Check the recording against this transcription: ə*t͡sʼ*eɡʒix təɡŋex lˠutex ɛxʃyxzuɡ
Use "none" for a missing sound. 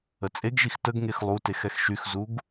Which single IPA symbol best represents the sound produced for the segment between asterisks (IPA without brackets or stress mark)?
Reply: t͡sʼ